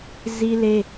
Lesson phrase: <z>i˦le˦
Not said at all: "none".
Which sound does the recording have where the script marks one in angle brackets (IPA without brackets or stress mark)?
z